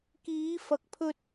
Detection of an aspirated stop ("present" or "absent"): present